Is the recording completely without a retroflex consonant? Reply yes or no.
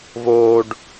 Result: no